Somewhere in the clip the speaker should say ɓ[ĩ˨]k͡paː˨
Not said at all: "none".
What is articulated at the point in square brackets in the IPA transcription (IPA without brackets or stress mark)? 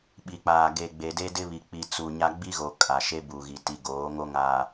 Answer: i˨